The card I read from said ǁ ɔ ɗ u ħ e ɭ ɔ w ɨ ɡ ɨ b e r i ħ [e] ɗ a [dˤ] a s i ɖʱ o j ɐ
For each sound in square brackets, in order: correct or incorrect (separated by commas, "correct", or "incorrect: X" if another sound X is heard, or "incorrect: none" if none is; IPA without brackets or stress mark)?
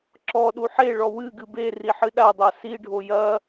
incorrect: ɨ, correct